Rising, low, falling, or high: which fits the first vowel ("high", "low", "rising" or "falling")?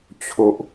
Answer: low